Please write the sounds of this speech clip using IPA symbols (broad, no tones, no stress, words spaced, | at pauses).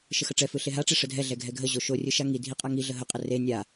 ʃəxəʈ͡ʂɛfɯ ɬeɦaʈ͡ʂe ʂədʱɛɮɛ ɡʱɛɡʱəʑo ʃorʲɯ ʃaŋidʱi qʼaŋiɮə ɦəqʼə re nʲa